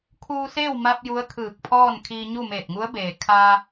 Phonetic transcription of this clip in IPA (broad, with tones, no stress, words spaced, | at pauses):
kʰuː˧seː˥˨wma˧p̚ ju˧˥ə̯kʰɯː˧˩k̚pʰɔː˥˨nkʰiː˧ ɲu˥˨meː˧˩t̚ŋu˧˥ə̯beː˩ kʰa˧